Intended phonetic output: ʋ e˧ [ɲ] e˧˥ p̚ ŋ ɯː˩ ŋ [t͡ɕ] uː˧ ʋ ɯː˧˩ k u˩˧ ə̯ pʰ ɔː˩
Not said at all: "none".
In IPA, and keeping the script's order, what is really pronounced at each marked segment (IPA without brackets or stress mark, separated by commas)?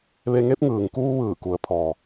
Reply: ŋ, k